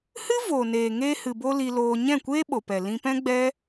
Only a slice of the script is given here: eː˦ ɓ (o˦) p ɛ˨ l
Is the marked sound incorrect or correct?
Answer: incorrect